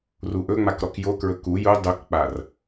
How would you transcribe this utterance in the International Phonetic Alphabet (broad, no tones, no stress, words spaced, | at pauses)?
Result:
ruʔɵŋ͡mak ɾɔkjokɹɵ ku ju dˤukk͡par